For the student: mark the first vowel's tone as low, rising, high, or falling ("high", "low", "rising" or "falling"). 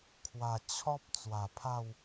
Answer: low